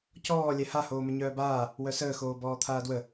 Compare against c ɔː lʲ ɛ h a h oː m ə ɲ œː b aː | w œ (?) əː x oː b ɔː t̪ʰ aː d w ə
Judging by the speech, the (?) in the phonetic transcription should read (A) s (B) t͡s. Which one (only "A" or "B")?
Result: A